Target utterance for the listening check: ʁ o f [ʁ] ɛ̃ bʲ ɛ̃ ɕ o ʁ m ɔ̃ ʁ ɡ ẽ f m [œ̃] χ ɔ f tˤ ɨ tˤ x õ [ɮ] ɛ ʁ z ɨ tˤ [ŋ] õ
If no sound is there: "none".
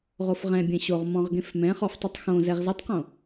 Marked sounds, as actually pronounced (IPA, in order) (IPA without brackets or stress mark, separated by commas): ʁ, ɛ̃, z, q